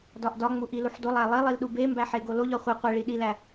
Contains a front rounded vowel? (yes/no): no